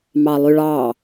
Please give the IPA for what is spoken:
mɑlˠyɭɑ

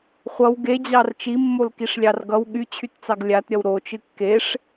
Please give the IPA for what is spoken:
χʷʌw ɡed͡ʑɑr t͡ʃimːolkiʂlʲɑr ɡʌw ɠyt͡ɕʰytt͡sɑɡ lʲatɾʲʌw ɾot͡ʃɨ kːeʂ

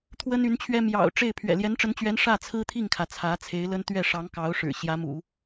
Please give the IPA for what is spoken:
t̪ʰwə˥ny˧˥nt͡ɕʰɥɛ˥ mjɑ̰˨˩ʊ̯ ʈ͡ʂe˥˩ɪ̯ pʰɥɛ̰˨˩ljɛ˧˥nʈ͡ʂə˧˥nt͡ɕɥɛ˧˥n ʂä˥˩t͡sʰɹ̩˥t̪ʰi˥˩ŋkʰä˩ t͡sʰä˧˥t͡sʰe˧˥ɪ̯lə˥n t̪ɥɛ˥˩ʂɑ˧˥ŋkɑ˧˥ʊ̯ʂɻ̩˨˩ ɕjä˧˥mṵ˨˩˦

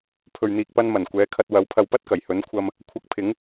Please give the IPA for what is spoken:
pʰɵ˨ɥn̪iː˨k̚pɐ˧nmɐ˨˩n kʷɛː˨˥kʰɐ˧t̚ wɐ˨˥wpʰɐ˧w pɐ˥t̚kɐ˨˩j hɵ˨˥nkʷʰɐ˧m | kʷʰɐ˧k̚pʰɪ˨˥ŋ

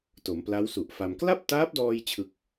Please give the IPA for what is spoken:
to˩˦mpla˦˥wsu˨˩ʔfa˧m kla˥˩p̚taː˦˥p̚dɔː˧j t͡ɕʰɯ˦˥k̚

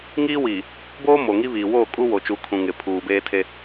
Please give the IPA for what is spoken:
ŋiː˦wiː˨ | boː˦ mo˨ŋi˦βiː˨ woː˦˨kʼu˦wo˨t͡ʃu˨˦ kʰũ˨ŋɪ˨ pʰuː˨beː˦tʰe˦

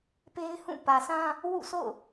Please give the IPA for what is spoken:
pe˦ɪ̯hũ˦˨ pä˨sʰã˦ | wṵ˦˨sʰo̰˦˨ʊ̯

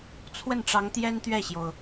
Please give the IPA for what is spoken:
t͡sʰwə˥˩nʈ͡ʂɑ˧˥ŋ t̪jɛ˥nt̪ɥɛ˥˩ɕjo˩ʊ̯

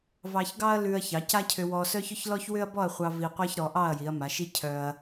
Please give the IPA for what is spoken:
vɑ˧çɡɑ˥ɐ̯ lʉ˧ɐ̯çɑ˩˧ ca˥cʰʏ˧ wɔ˧sœ˥çʏ˥ç lɔ˥çwʏ˥ɐ̯bɔ˥˧ɐ̯χʷɑ˧ vi˧ qʷɑ˥çɾɔ˩˧ʔɑ˥˧ɐ̯ ji˩˧ɐ̯ma˩˧ʃi˥ cʰœ˧ɐ̯

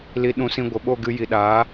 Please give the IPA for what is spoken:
li˧ɗũ˧sĩ˧ ɡʷə˨ɓo˦˨ɡɨ˧ ji˨ɗaː˨˦

